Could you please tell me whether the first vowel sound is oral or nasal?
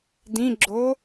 nasal